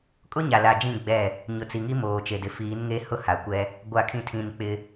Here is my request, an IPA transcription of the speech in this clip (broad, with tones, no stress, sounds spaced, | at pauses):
kʼ ʊ˦ ɲ a˨ l a˨ d͡ʒ ĩ˦˨ ɡ͡b ɛ˦˨ | ɲ ʊ˨ t͡s i˨ ŋ i˦ m oː˨ t͡ʃ e˨ d ɪ˨ f iː˨˦ n ŋ e˦ h ʊ˦ h a˨ kʷ ɛ˦ | ɡʷ a˨ kʰ ĩ˨ tʰ ĩ˨ n k͡p ɪ˦